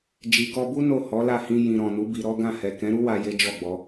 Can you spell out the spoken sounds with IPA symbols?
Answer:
d͡ʒi˨kɔ˧bu˦ no˦˨hɔ˨˦la˦˨hĩ˧ jĩ˨ɾɔ̃˨nu˨˦ bi˧ɾɔ˦ ɡã˦˨hɛ˨ kɛ̃˨˦ɾu˦wa˧ je˦d͡ʒɔ˦˨ɡ͡bɔ˨˦

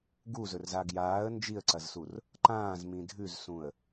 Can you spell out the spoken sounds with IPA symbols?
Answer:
ɡuzɵrza ɡjaːə̯ nd͡ʒiə̯ǀɐzsur | ǃãːzmĩ dʱʉzsũə̯

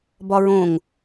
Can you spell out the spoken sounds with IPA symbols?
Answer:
bɒɹõŋ

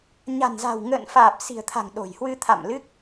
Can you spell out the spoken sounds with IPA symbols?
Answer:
ɲa̤˨˩nza̤˨˩w ŋə̰ː˧˨n faː˨˩p̚si̤˨˩ə̯t̪ʰa̤˨˩ŋ ɗo̤˨˩jhwɨ˧ t̪ʰa̰˧˨mlɨ˦˥k̚

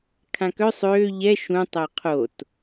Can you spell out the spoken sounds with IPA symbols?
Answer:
kʰãkœ sˤøː ʎɛ ʃũ tˤeqʰot

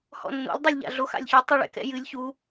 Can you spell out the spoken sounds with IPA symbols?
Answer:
hɔ̰nːo̰lʲ dˤulʲʎa̰ɮo xa̰lʲçu tˤuɭɛ̰kɛ̰jɨlʲ çu

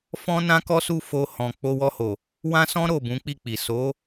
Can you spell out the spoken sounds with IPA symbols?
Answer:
fɔ̃˦nã˦kɔ˦su˦˨ fo˧hɔ̃˨k͡po˧ wɔ˧ho˨ | wã˦sɔ̃˦ ɾo˦˨bũ˨˦k͡pi˦˨k͡pi˨ so˨˦

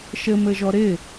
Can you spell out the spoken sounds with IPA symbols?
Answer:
ʃɘmɘʒɔ ɾɪ

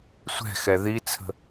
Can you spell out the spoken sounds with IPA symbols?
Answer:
sʷɛ̤xɛ ðit͡sʰə̤

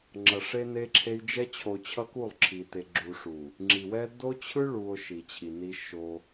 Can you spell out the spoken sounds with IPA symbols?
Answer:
ŋ͡ǁʌ˨ʂe˦ne˦ǁʰe˦j d͡ʒɛ˦ t͡ɕʰo˨t͡ɕʰʌ˦ ku˦˨lˠǁʰi˨te˨ ɡ͡ǁu˨ʂu˨ | ŋ͡ǁi˨wɛ˦ do˦t͡ɕʰɯ˦ɭu˨o̯ ʃi˨t͡ɕʰi˨ni˦ ʃo˦

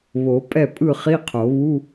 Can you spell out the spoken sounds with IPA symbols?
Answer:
βo˨˩˦pʼɛ˥˩pʼɯ˥˩χi˧˥˧ qʰo˨˩˦βu˧˥˧

